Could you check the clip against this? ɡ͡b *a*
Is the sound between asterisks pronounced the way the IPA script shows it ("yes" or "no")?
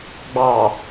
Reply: no